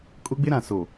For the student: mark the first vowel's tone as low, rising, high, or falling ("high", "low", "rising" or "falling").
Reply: high